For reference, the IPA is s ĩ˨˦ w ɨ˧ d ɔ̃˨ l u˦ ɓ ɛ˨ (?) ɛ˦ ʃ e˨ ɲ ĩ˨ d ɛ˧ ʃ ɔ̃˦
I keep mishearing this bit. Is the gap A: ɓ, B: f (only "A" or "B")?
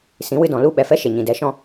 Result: B